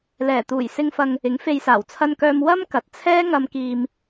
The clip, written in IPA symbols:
lɛː˨˩t̪uː˨˩j sɪ˧ŋfɐ˧ŋ | ɪ˨˥ŋfe˧jsaː˨˩w t͡sʰɐ˧nkœː˧m wɐ˥m kɐ˨t̚t͡sʰɛː˥ ŋɐ˧mkiː˧m

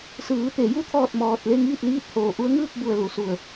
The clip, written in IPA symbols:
sɯː˩˧t̪e˩˧ju˧t̪ʰɔː˧˩t̚ mɔː˧t̚ le˥˨ŋiː˥˨t̚ liː˥˨t̚hoː˧˩ ʔu˧˥ə̯ŋɯː˥˨k̚bu˧˩ə̯ lu˩˧su˧˩ə̯

